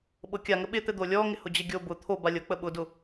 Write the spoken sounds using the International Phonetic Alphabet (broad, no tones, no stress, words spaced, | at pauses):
ɓɤkʲaŋə ɓɪt̪ɘ d̪olʲɔ ŋɪhʊd͡ʑɘɡʲo bʊ t̪ʰobalʲɤ k͡pəɓʊdʊ